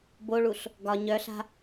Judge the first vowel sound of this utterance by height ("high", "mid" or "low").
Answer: mid